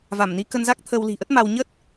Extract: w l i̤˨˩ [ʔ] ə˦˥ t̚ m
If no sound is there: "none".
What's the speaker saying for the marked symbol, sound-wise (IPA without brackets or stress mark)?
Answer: ʔ